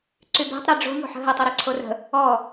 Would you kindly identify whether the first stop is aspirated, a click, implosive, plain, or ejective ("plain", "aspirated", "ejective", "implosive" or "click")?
click